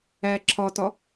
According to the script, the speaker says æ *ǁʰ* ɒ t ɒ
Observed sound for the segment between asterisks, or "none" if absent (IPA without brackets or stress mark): ǁʰ